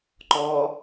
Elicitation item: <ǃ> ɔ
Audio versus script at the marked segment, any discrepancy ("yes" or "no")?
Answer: no